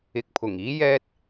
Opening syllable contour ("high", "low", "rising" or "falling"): low